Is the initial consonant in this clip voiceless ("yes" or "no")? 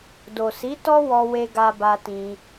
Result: no